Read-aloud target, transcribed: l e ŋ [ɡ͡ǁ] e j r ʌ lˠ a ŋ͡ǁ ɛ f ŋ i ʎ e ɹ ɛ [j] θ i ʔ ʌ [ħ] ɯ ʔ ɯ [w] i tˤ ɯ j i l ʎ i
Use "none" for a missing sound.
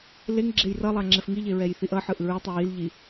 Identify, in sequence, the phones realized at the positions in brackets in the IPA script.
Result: ɡ͡ǁ, j, ħ, ɹ

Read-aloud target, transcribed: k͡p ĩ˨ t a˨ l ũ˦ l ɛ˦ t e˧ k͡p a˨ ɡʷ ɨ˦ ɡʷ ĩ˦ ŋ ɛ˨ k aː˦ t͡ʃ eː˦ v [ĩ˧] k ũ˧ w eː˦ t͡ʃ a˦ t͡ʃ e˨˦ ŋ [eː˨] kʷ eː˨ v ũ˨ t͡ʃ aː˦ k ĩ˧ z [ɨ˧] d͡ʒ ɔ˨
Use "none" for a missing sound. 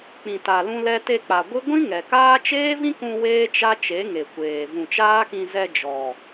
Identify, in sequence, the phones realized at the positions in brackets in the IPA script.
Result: ĩ˦, e˨, ɛ˧

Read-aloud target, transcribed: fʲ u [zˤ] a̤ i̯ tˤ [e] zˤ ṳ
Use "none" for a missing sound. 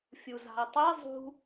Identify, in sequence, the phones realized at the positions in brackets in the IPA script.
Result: z, i

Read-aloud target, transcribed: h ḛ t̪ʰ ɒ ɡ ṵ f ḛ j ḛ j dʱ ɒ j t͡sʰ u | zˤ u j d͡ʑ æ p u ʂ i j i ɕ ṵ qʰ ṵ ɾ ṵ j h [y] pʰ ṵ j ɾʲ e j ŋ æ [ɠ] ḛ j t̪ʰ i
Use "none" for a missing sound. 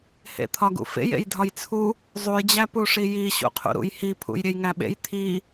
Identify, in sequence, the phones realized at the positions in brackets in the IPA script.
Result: i, ɓ

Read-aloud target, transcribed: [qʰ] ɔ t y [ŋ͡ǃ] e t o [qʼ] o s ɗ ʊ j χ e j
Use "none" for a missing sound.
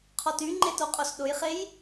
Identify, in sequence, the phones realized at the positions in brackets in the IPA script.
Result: qʰ, ŋ͡ǃ, qʼ

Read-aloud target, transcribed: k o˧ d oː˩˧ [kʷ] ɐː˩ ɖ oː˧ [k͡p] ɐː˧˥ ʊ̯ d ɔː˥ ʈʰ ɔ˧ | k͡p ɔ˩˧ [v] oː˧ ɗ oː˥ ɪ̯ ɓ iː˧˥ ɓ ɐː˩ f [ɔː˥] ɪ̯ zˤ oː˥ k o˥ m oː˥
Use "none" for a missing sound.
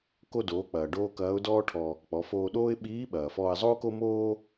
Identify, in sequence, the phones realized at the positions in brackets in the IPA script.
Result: k͡p, k, f, ɔː˧

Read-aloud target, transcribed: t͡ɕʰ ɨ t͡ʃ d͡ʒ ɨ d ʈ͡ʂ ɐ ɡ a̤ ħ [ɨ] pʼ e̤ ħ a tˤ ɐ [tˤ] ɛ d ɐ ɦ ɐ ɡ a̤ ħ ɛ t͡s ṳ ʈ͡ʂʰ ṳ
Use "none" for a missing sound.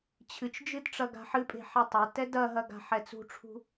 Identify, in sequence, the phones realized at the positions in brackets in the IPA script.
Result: ɨ, t

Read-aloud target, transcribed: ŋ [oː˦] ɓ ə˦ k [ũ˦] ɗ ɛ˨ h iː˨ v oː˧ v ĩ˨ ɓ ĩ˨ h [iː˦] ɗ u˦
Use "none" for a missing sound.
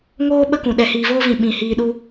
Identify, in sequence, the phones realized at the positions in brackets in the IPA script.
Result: oː˦, ũ˨, iː˧

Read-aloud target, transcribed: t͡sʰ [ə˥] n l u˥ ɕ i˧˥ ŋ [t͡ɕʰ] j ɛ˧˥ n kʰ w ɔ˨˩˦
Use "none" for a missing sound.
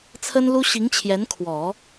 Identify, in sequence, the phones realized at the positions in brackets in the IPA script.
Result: ə˥, t͡ɕʰ

